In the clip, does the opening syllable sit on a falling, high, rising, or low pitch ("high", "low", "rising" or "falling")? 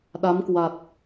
rising